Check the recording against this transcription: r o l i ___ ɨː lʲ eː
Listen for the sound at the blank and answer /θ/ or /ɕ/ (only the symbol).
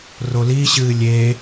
ɕ